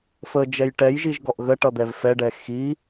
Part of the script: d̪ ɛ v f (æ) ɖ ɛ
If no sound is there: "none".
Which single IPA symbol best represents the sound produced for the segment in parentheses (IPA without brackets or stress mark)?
ɛ